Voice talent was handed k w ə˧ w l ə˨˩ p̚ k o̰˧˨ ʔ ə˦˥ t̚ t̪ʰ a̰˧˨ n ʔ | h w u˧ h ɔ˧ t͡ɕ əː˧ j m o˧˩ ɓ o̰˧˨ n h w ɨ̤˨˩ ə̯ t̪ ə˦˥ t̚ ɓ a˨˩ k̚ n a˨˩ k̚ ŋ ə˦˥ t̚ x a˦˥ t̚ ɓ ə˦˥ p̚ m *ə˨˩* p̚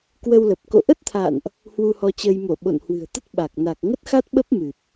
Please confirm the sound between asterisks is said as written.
no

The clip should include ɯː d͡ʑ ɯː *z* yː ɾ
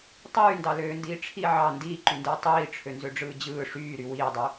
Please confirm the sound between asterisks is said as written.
no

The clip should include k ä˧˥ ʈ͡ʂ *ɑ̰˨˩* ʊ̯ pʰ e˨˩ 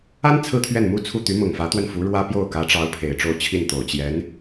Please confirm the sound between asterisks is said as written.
no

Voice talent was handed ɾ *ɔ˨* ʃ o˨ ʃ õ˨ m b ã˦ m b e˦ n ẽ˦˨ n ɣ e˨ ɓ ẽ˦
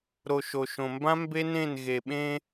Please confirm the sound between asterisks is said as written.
no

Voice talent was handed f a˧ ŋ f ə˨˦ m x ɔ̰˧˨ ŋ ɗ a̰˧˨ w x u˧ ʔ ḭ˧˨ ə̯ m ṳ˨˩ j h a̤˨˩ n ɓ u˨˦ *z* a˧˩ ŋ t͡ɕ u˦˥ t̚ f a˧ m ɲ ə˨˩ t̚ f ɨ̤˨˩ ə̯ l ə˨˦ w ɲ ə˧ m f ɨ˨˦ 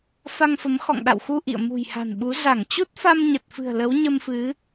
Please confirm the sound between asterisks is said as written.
yes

